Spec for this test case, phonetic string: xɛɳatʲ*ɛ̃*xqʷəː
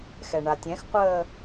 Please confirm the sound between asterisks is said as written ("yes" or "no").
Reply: yes